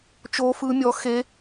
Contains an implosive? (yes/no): no